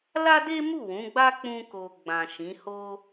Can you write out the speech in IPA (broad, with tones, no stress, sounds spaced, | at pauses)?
l a˦ d e˦ m u˦˨ w ũ˨˦ ɡ͡b a˦ k͡p ũ˧ k o˨ ɡ͡b ã˨ ʃ ĩ˨˦ h o˦